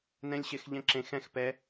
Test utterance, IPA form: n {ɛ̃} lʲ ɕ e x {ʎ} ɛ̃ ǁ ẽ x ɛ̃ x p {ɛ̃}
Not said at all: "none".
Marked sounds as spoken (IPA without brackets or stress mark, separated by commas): ɛ̃, ʎ, ɛ